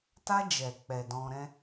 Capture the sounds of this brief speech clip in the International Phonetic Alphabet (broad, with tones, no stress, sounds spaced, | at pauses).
t a˧ d͡ʒ ɛ˨ k͡p ɛ˨ d ɔ̃˧ ɾ ɛ̃˦